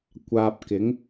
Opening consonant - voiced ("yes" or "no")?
no